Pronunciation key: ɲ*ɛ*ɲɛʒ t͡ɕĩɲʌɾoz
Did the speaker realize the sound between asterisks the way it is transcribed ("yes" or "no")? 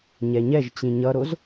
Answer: yes